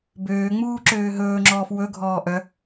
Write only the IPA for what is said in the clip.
bøːŋ͡muː ǁøːɦɵːŋ͡ǁɔːf wɵɡʱɔː ʔœ

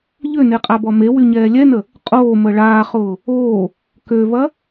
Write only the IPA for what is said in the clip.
ʎøneqʼabɔ mewyɲɛː lʲɛnə | qʼoːmə ɭaːχʊː | oː | køvɐ

